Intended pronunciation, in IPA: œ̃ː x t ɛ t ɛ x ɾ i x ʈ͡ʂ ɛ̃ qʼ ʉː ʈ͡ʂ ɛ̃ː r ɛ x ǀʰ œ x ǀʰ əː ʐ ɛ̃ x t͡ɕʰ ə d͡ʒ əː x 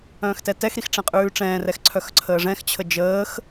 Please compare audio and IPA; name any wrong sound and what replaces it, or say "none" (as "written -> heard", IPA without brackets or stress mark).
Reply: none